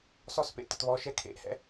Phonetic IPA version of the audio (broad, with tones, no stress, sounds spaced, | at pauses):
s ɔ˥˧ s p ḛ˥˧ t ə˥˧ t β ɔ˧˥˧ ʃ ɛ˥ kʰ ḛ˧˥˧ ʔ h ɛ̰˧˥˧